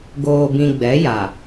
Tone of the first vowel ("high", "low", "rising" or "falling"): low